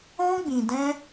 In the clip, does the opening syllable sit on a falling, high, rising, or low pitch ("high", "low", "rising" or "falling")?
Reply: high